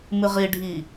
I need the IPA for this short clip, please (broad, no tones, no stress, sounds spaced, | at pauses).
m ɨ ʁ i ɖʱ i